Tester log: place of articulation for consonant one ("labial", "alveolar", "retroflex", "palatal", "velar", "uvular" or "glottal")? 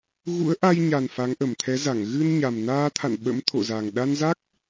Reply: velar